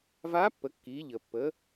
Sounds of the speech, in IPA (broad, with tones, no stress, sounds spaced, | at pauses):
v aː˧˥ pː ə˩˧ kː iː˩˧ ʎ əː˩ pː əː˩˧